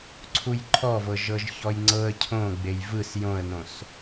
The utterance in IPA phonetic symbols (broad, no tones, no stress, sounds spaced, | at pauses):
ǀʰ u j ǃʰ ɔ v ɤ ʒ ɤ ʒ ç ɔ j ŋ͡ǀ ɤ ə̯ cʰ õ ɡ͡b e j v ɯ s j õ ə̯ n õ s